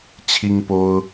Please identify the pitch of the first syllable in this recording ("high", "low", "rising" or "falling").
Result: high